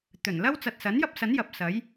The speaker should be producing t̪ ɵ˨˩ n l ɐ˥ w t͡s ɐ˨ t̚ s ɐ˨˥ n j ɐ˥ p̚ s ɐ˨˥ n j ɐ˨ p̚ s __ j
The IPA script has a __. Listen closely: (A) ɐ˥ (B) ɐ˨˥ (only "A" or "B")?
B